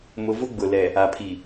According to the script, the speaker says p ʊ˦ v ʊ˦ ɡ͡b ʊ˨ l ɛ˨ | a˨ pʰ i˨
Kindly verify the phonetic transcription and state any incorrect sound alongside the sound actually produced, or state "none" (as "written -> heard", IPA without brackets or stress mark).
p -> m